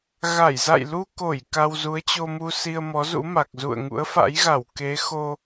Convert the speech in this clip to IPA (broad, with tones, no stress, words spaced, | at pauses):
ɣa˧˩jza̰˧˨jlu˧ko˧˩j ka˧wzu˨˦ə̯t͡ɕo˧mu˧ si˧ə̯mɔ˨˦zṵ˧˥ma˨˩k̚ zṵ˧˨ə̯ ŋṵ˧˥ə̯fa̰˧˥jɣa˧˩w ke˨˦xo˧